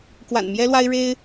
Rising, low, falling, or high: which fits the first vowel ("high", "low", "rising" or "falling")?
low